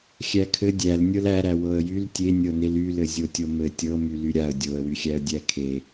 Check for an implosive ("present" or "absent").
absent